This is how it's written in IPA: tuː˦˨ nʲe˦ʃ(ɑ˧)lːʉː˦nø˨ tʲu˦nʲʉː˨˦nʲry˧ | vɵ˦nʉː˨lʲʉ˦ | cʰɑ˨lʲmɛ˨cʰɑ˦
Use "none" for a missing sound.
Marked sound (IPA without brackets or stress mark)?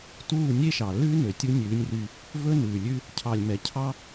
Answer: ɑ˨